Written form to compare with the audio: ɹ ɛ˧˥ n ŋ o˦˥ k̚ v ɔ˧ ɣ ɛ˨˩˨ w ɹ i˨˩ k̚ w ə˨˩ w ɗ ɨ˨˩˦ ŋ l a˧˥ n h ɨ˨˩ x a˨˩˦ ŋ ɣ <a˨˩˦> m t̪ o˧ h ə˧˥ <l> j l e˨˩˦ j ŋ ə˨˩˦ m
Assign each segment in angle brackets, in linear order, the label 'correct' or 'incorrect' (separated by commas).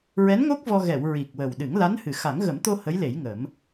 incorrect, incorrect